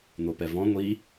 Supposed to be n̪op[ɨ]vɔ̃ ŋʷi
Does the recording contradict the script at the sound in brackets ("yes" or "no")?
yes